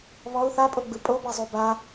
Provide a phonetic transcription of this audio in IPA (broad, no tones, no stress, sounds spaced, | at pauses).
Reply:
β ɔ u̯ θ a pʼ o ɡ͡b ɯ pʼ o b a zˤ o b a